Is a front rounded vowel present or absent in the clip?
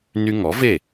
present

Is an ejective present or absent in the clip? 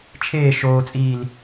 present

